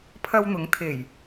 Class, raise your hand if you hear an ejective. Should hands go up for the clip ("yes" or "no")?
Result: no